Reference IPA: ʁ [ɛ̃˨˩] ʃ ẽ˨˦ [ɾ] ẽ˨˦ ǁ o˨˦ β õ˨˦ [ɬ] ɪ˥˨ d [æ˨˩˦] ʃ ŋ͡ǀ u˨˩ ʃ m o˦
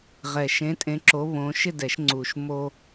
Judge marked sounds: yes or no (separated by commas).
no, no, no, no